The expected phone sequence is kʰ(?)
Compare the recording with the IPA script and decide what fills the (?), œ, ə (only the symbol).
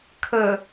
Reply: ə